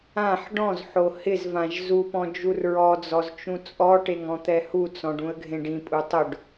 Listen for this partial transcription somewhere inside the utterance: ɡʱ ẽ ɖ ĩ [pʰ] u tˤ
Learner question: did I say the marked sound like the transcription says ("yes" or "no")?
no